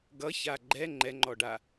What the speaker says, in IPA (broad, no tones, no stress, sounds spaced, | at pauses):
ɡ ʌ ç a ɡ͡ǃ ɛ ŋ͡ǃ ɛ ŋ͡ǃ ɔ ɖ a